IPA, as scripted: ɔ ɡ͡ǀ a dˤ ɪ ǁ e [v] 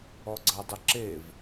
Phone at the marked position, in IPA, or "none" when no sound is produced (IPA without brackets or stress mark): v